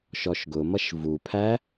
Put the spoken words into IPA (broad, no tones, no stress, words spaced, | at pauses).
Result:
ʃɔʃɡʊmʌʃ vupʰæ